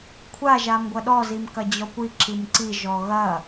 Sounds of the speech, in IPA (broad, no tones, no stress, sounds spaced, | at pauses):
kʷʰ a ʒ a m ɡʷ ɐ ɗ ɔ z i m k ɐ d͡ʑ ɔ kʷ i ǁ i m ǀ i ʒ ɔ ɣ ɐ